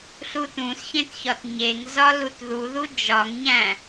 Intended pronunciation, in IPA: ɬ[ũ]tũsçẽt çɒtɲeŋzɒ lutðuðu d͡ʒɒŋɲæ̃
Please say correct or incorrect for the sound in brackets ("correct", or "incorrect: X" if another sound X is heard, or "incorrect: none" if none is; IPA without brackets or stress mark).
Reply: incorrect: u